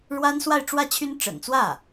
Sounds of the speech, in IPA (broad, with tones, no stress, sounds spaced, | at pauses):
ɻ w a˥ n s w a˥˧ ɪ̯ ʈ͡ʂ w ä˥˩ t͡ɕʰ y˥ n ʈ͡ʂ ə̰˨˩ n t͡s w ä˥˩